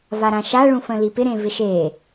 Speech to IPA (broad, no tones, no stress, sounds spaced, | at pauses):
v a ɾ ã ʃ a ɭ ũ f ə̃ l i p ɪ ɾ ẽ v ɪ ʃ e